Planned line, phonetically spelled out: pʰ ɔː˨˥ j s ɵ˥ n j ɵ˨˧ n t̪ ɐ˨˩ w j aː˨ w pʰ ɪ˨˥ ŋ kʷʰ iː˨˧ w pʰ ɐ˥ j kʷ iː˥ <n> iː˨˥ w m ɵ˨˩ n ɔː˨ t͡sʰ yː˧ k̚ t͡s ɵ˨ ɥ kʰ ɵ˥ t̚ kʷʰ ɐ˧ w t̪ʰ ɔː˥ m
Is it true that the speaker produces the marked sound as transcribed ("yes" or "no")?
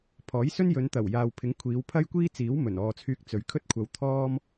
no